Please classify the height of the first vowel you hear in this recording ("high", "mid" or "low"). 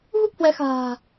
high